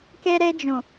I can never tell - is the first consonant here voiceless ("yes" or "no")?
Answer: yes